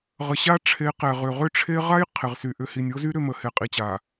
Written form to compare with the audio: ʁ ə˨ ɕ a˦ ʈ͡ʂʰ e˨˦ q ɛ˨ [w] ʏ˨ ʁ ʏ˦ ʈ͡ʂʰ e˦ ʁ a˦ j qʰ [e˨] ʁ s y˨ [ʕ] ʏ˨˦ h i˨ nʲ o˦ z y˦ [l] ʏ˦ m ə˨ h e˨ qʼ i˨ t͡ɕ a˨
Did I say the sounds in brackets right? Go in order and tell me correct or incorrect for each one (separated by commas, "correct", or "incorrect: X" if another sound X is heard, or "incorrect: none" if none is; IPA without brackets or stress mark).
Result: incorrect: ʁ, correct, incorrect: ʔ, incorrect: ɾ